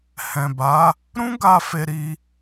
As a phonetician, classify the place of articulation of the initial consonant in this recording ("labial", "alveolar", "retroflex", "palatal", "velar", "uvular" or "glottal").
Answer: glottal